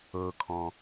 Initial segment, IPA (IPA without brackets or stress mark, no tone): ɤ